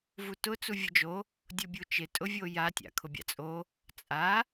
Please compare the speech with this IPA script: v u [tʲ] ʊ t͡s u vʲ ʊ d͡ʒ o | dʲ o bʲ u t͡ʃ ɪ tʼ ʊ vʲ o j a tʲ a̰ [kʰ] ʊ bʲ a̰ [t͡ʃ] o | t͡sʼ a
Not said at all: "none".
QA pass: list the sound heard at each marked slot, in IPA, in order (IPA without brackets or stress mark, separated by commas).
t, kʰ, t͡sʼ